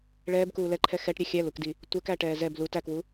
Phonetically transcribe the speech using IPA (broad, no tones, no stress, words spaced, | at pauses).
ɭɛːbkuː lɛǃʰɛ xɛʈɾʲɛ xʲælukdi | tʷɛkæʈɛː zɛb lut ækwu